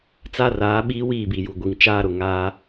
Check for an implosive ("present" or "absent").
present